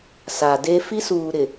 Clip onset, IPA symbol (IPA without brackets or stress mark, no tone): s